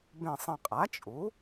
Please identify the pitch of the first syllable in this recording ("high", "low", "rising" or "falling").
low